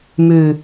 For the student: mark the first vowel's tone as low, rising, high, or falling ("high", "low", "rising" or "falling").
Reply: low